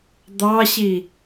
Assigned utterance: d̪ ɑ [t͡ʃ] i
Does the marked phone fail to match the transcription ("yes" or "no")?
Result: yes